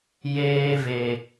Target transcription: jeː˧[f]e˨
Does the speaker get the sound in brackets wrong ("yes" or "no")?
yes